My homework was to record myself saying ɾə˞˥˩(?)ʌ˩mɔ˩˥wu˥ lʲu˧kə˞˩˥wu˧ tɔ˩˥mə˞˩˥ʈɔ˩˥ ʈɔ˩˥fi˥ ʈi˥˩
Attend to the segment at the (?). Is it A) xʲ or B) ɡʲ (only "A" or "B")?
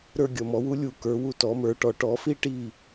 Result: B